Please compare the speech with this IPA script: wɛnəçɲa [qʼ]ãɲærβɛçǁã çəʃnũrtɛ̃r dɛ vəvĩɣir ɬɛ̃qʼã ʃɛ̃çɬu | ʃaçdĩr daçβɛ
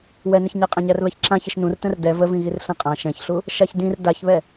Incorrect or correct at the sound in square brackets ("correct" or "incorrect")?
correct